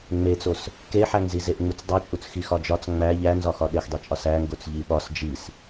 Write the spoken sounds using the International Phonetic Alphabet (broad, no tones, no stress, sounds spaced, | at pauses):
ŋ͡m e t͡s o s | k e ħ æ ŋ z i z e ʔ ŋ͡m u t͡s dˤ o t͡ʃʼ u t͡s x i x ɒ d͡ʒ ɒ t͡s ŋ͡m æ ʎ æ n z ɒ x ɒ ɗ e x dˤ i t͡ʃʼ ɒ s æ ŋ ɡ o t͡s ʎ i ɓ ɒ s d͡ʒ i s